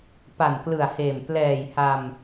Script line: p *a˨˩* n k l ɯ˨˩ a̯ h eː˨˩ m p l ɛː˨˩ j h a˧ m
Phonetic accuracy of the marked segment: correct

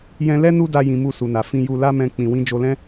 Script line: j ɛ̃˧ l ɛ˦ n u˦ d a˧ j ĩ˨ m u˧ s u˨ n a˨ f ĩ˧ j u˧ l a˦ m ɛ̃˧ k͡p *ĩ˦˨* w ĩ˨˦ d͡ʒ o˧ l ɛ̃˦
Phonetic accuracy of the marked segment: incorrect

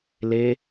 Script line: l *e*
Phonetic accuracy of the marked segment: correct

